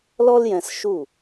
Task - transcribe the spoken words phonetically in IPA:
l ɔ˥ l j ɛ̃˧ s ʃ u˥˩

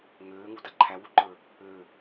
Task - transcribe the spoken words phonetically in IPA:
ŋ øː ŋ u d a ǃʰ æ w u ǃ ə˞ | ø

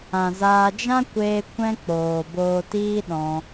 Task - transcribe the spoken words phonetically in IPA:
ã˨ z aː˧ d͡ʒ ã˦ kʷ eː˧ kʷ ɛ̃˦ k͡p oː˨ b oː˧ t iː˦ ɗ ɔ̃˧

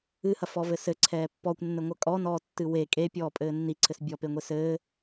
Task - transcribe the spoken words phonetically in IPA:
ɨ h ɐ f ɔ v ɘ s ɘ ǀʰ ɛː pː ɔ kʷ nː ɘ ŋʷ ɐ kʼ ɔ n ɔː tː ɨ w e kʼ e pʲ ɔː pʼ ɘː nː i ǀʰ ɘ s bʲ ɔ p e ŋʷ e s ɘː

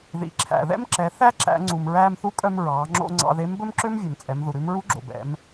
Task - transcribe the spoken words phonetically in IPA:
ð ḭ˩˧ ǁʰ æ̰˩ ð ɛ̰˥ m ǁ ɛ˩˧ θ æ˥ ǁ æ̰˩˧ ŋ͡ǀ u˩ m ɹ æː˧ m θ u˧˥ kʼ œ˧ m ɹ ɑː˩˧ ŋ͡ǁ o̰˧ ŋ͡ǀ ɑ̰˧ ð e˧˥ m b ɵ˥ m ǁ ø˥ m vʲ ø˩ m t͡sʼ ɛ˩˧ m ð u˩ ɾ ʉ˧˥ m ɹ u˧˥ ɡ͡ǁ o̰˩ b ɛ̰˩˧ m

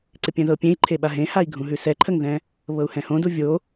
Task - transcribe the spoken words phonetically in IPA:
ǀ ɪ pʲ ɛ̃ ð ɤ pʲ ẽ i̯ ǃʰ e ɓ a ɦ ẽ h a i̯ ɡʱ ũ ɦ ʉ s ɛ ǃʰ ə ŋ ð ɛ̃ | β ɤ u̯ h ɛ̃ h õ d u vʲ o

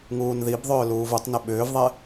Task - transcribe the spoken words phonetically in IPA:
ŋ uː n ð i b ðˤ ʏː l uː v u tˤ n e ɓ ʏː v ðˤ ɛ

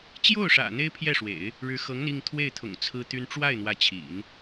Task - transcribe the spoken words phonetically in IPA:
t͡ɕ j o˥˩ ʊ̯ ʂ ä̰˨˩ n̪ e˥ ɪ̯ pʰ j ɛ˥˩ ʂ w ḛ˨˩˦ ɪ̯ | ɻ ɻ̩˧˥ x ɤ˧˥ ŋ ə˧ n i˥˧ ŋ t̪ʰ w e˥˩ ɪ̯ t̪ʰ ʊ̰˨˩ ŋ t͡sʰ ɹ̩˥ t̪ y˥ n ʈ͡ʂ w a˥˩ ɪ̯ n̪ w ä˧˥ t͡ɕʰ ḭ˨˩˦ n

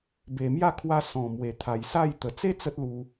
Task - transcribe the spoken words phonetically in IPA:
b e˨˩ m j a˥˧ kʰ w a˧ s ɔ̃˨˩ m w e˨˩ t̪ʰ a˨˩ j s a˥˧ j t̪ ə˨˩ t͡s e˦ t͡s ə˦ t̚ l u˧

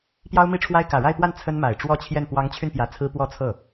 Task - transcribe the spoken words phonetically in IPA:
p j ɑ˥ ʊ̯ m i˥ ʈ͡ʂʰ w a˥ ɪ̯ k ä˨˩ ɻ a˥˧ ɪ̯ p w a˥˩ n t͡sʰ ə˥ n m a˨˩ ɪ̯ ʈ͡ʂ w ɔ˥˧ t͡ɕʰ j ɛ˥˩ n p w ɑ˧˥ ŋ t͡ɕʰ y˧ n p j ä˧˥ t͡sʰ ɹ̩˥ p w ɔ˥˧ t͡sʰ ɤ˥˩

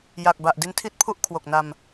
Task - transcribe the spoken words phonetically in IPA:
j a˨˩ k̚ b a˨˩ ʔ d i˧ n tʰ i˥˩ t̚ pʰ u˥˩ ʔ kʰ w o˨˩ k̚ n a˧ m

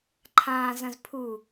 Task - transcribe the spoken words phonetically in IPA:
ǃʰ ãː z ɐ̃ z pʰ u

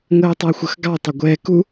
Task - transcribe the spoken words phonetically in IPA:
ŋ əː tˤ ɛ xʷ ə x ɡ ɑ tˤ o ɡʷ ɛː k u

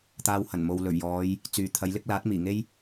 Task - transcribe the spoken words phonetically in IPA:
t̪ aː˧ w h ɐ˨˩ n m o˨ w l ɵ˨˩ ɥ j ɔː˨˧ j | t͡s yː˨ t̪ʰ ɐ˨˧ j l ɪ˥ k̚ l aː˨˥ t̚ m iː˨˩ ŋ e˥ j

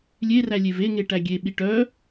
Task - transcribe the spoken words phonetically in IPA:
lʲ e r æ lʲ e v e ŋ e ʈ æ ɡʲ e ɓ i ʈ œ

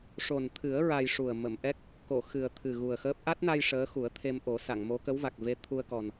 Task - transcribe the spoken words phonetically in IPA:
ʂ o˨˩ n t̪ʰ ɨ˨˩˦ ə̯ ɹ a˧ j ʂ u˨˩ ə̯ m ə˨˩˨ m ʔ ɛ˦˥ k̚ | k o˨˩˨ x ɨ˨˩ ə̯ t̪ʰ ɨ˨˩ ɣ u˨˩ ə̯ x əː˦˥ p̚ ʔ a˦˥ t̚ n a˧ j ʂ əː˧˥ x u˨˩˦ ə̯ t̪ʰ e˧ m ʔ o˨˩˦ s a˨˩˨ ŋ m o˧˥ k ə˧˥ w v a˨˩ k̚ v e˧ t̪ʰ u˧ ə̯ k ɔ˨˩ n

